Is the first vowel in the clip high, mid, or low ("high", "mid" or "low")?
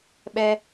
mid